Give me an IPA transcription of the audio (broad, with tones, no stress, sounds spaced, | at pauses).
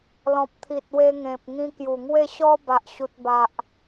l ɔ̃˨ p̚ t̪ʰ i˨ t̚ w e˧ ŋ ẽ˨ p̚ ŋ ĩ˧ k j u˨˩ ŋ w e˥˧ ɕ ɔ˦ b a˨ ʔ ɕ u˨ t̚ b a˨ ʔ